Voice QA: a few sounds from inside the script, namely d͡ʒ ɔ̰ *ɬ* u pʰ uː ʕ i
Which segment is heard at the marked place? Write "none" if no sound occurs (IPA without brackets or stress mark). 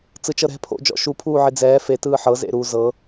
ʃ